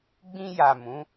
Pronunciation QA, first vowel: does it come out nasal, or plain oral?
nasal